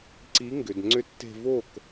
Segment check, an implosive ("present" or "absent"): absent